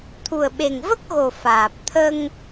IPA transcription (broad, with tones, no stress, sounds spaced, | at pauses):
t̪ʰ u˨˩ ə̯ ɓ e˨˩ ŋ v ə˦˥ k̚ ɣ o˨˩ f aː˨˩ p̚ t̪ʰ ə˧ ŋ